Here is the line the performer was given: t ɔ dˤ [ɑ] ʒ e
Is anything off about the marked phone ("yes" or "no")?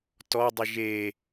yes